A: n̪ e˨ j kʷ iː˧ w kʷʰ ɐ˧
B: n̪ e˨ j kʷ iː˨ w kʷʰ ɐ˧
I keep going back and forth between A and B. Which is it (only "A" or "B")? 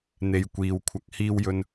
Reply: B